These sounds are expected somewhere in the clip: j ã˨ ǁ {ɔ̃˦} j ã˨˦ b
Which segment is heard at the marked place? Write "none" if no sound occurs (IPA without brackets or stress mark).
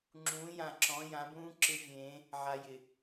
ɔ̃˨˦